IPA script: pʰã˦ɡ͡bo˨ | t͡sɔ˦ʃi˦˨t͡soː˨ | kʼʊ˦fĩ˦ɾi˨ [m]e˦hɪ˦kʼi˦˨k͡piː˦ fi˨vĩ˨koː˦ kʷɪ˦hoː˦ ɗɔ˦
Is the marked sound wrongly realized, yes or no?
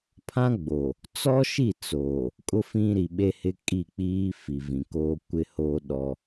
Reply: yes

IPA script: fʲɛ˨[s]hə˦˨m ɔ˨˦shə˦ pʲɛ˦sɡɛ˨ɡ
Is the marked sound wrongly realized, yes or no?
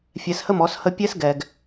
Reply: no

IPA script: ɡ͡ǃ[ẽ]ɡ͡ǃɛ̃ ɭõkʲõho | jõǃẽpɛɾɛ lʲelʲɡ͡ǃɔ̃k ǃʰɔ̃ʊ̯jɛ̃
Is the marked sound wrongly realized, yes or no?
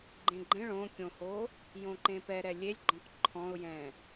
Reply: no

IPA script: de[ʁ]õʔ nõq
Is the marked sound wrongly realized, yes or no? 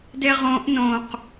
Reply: no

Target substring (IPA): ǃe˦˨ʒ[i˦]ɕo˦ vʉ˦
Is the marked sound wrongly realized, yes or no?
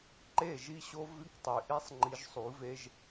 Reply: no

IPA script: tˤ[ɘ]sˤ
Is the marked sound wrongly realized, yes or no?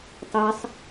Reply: yes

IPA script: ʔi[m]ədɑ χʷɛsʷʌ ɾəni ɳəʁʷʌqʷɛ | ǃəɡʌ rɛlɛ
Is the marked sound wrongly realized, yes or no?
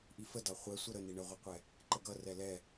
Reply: yes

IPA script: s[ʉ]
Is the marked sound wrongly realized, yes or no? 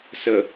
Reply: yes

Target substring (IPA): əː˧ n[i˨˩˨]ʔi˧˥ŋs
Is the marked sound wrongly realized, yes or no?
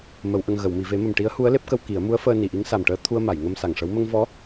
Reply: no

